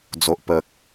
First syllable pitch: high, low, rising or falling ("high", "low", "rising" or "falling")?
low